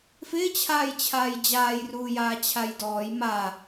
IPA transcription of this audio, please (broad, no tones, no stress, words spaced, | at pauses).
fɪːt͡ɕʰaːj t͡ɕʰaːjd͡ʑaːjruːjaː t͡ɕʰajdɔːj ma